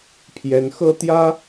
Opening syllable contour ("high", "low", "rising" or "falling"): rising